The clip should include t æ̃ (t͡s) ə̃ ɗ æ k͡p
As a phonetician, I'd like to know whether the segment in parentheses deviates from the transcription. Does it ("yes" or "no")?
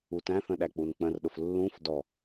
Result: yes